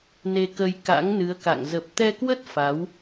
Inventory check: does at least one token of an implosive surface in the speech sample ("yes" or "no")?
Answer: no